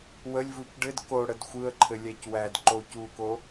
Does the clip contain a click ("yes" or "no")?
yes